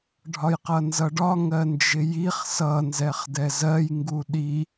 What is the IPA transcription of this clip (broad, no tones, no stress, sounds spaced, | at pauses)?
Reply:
ɖʱ ɒ j q ʌ n z ʌ ɖ ɒ ŋ ɜ n d͡ʒ ɪ j i χ s ʌ n z ɛ χ d ɛ z ɜ j ŋ ɡ u ɗ i